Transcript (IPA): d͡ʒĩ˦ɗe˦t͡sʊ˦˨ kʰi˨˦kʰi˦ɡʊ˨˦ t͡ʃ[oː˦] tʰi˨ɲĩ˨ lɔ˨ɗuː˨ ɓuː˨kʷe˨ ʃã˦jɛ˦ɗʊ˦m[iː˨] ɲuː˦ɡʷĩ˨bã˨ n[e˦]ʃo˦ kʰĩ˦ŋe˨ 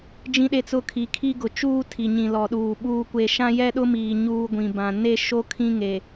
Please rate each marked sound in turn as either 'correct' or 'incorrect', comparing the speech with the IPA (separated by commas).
incorrect, correct, correct